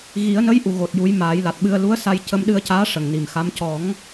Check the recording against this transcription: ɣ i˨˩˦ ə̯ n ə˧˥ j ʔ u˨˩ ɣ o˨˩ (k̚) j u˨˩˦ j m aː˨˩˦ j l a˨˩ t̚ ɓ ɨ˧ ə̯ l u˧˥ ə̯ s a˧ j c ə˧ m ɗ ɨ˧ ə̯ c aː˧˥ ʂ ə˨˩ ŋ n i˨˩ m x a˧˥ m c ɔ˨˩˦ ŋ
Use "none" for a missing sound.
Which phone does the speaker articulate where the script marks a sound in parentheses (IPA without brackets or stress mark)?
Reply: t̚